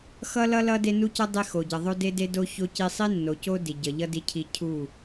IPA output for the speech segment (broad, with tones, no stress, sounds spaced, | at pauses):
x ʌ˦ l ʌ˦ l ʌ˦ d e˦ n u˦ c ʌ˦ dˤ e˦ x o˨ ɟ ʌ˨ ðˤ o˦ d e˦ d e˦ d o˦ ç o˦ c i˦ sˤ i˦ nː o˨ c o˦ d i˨ ɟ ʌ˨ ʎ ʌ˦ d i˦ cʰ i˦ cʰ u˦˨